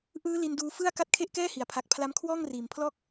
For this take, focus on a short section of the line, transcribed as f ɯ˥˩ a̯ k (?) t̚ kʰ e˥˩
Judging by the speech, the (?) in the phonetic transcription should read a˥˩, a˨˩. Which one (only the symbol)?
a˥˩